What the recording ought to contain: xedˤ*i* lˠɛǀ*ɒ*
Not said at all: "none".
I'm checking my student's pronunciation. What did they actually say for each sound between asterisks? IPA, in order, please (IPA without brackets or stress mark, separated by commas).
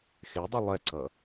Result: i, ʌ